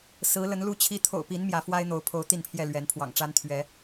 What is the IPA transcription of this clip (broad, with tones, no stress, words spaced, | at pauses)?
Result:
sɹ̩˨˦lə˨˦n lu˦t͡ɕʰi˦ t̪ʰo̰˨˩ʊ̯pi˨˦n mjä˨˦fwa˦ɪ̯ n̪o˨˦ʊ̯pʰo˨˦ʊ̯ t̪i˥˨npʰjɛ˥˨ lɥɛ˨˦npʰwɑ̰˨˩ŋʈ͡ʂa˦n t̪ʰɥɛ˨˦